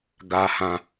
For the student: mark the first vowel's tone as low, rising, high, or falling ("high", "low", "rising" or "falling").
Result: high